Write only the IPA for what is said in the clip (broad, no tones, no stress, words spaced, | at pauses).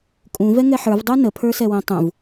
kʼũ vɛŋɛħə˞v dˤə˞nə pʰə˞sɛwɛ̃tˤũv